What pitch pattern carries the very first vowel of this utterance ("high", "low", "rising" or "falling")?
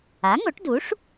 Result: rising